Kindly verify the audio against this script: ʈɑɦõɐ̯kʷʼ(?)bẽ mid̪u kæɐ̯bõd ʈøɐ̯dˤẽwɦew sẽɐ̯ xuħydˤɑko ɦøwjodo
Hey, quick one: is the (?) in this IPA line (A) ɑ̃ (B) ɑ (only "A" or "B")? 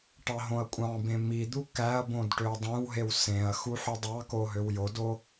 A